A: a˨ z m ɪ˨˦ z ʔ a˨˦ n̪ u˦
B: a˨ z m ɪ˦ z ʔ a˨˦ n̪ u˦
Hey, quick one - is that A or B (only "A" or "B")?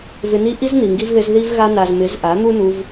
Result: A